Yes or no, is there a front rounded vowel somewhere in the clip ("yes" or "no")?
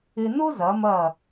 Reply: no